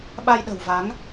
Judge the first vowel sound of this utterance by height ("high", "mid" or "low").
low